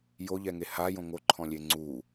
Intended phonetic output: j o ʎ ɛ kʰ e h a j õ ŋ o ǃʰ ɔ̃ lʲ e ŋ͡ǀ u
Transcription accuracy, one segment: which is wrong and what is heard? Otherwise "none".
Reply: kʰ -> ŋ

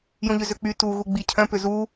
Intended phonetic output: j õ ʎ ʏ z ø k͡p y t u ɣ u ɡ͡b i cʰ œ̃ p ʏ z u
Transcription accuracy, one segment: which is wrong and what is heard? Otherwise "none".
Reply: none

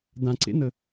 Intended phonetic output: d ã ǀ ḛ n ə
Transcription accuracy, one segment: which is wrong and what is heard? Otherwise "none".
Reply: none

